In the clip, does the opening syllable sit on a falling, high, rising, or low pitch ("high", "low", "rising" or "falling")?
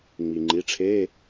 low